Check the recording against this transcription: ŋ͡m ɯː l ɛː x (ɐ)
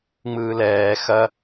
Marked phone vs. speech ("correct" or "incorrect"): correct